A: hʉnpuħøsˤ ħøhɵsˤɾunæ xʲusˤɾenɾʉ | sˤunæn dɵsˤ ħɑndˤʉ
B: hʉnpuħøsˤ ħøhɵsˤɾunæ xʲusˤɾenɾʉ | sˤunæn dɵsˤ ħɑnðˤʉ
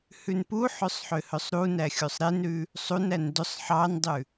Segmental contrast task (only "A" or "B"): A